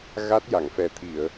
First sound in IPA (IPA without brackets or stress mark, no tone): ɣ